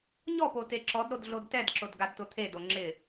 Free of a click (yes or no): no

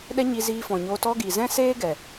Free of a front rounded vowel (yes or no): yes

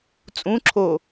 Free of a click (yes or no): no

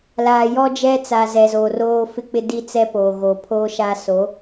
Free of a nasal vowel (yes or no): yes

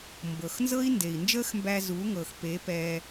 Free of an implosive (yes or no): yes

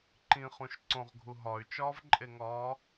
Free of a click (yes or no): no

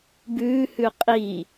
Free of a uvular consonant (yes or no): no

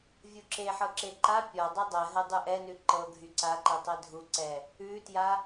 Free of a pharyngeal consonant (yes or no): no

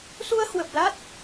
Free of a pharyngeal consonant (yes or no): yes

